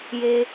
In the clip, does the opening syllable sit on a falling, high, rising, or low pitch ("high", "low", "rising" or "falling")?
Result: low